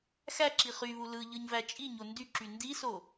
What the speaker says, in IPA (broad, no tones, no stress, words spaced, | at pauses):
xæǁi χyβu lɯ ʎɯɲvæt͡ʃʼiɲo ndyǁy ndiso